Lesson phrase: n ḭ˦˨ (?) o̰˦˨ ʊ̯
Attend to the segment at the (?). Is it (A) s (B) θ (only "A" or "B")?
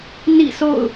A